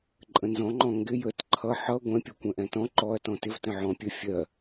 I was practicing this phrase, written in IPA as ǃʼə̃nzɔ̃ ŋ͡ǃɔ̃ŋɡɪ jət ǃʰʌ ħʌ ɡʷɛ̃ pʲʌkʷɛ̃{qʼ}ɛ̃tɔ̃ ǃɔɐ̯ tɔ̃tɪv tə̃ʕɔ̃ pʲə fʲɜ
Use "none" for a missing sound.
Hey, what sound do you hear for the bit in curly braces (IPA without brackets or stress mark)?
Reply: ʔ